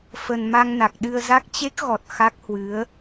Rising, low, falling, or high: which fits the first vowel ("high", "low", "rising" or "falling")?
low